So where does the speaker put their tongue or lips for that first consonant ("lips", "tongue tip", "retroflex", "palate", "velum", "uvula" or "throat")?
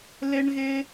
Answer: tongue tip